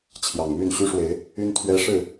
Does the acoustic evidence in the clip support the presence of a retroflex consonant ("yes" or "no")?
yes